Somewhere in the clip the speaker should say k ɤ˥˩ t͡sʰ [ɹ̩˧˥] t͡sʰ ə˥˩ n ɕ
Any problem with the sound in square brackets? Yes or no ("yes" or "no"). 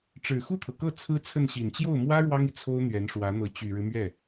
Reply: yes